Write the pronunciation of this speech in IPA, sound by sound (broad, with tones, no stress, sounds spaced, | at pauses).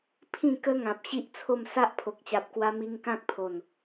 pʰ ĩ˥˧ k ə˦ ŋ ã˨ p̚ ɕ i˦ ʔ t͡sʰ o˥˧ m s a˦ ʔ pʰ o˨ k̚ t͡ɕ a˨ p̚ k w a˧ m i˧ ŋ k ã˦ k̚ pʰ o˨˩ n